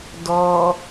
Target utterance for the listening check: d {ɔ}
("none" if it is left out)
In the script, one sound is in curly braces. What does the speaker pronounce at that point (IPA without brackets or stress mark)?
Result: ɔ